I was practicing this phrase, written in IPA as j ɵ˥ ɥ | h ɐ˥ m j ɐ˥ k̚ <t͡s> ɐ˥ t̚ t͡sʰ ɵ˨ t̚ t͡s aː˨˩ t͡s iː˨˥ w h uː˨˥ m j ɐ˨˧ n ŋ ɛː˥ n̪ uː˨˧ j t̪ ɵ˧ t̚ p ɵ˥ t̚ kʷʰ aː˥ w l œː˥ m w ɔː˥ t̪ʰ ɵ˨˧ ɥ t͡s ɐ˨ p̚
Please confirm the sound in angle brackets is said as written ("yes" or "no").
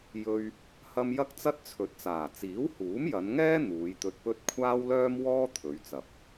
yes